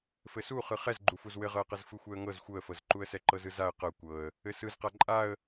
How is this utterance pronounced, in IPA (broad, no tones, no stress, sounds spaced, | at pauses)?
f ɘ s u χ ɯ χ ɛ z ɡ͡ǃ u f u z w ɘ ʁ ɤ ə̯ q ɤ z f ɯ xʷ ɛ ə̯ ŋ ɤ z xʷ ɤ ə̯ f ɤ z ǃ u ə̯ s ɛ ǃ ɤ z ɯ z a ə̯ q ɤ kʷ ɤ ə̯ | ɘ s ɯ z q a ǃʼ a ə̯